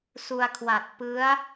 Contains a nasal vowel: no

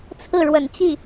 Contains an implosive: no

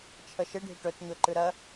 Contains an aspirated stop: yes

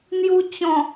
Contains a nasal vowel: yes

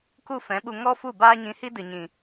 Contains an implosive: yes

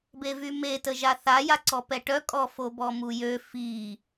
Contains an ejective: yes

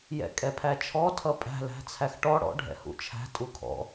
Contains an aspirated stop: yes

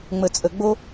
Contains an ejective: yes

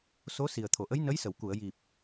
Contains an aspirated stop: yes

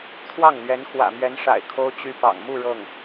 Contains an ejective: no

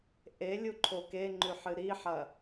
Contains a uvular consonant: no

